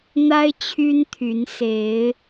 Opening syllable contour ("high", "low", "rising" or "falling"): high